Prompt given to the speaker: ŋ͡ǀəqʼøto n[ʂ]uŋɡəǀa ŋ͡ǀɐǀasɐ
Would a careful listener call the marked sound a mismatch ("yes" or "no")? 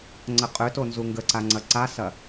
yes